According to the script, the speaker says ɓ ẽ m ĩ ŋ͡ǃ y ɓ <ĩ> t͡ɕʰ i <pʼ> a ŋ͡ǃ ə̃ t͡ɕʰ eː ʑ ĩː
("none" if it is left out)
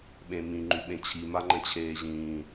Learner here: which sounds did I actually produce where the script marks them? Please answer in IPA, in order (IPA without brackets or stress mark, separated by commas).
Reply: ẽ, m